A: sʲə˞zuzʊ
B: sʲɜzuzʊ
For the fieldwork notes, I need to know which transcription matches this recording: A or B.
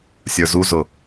A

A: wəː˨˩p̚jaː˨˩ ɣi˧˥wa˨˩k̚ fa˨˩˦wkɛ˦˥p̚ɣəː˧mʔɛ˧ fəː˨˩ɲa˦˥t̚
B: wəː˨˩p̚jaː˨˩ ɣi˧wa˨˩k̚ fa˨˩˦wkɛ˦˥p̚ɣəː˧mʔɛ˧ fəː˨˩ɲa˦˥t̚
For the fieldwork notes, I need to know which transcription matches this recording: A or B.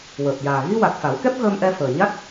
B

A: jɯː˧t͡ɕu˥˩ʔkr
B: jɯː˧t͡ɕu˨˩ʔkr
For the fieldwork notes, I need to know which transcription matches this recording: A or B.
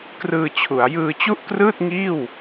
A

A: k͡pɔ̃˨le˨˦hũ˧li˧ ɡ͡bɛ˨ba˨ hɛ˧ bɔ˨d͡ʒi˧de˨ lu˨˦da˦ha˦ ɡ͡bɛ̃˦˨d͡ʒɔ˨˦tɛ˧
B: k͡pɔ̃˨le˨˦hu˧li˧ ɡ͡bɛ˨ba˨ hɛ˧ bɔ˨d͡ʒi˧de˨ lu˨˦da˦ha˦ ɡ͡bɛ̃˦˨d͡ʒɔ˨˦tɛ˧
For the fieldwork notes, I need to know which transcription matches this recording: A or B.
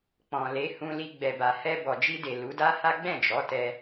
A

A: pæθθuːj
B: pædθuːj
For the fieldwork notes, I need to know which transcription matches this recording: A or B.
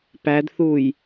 B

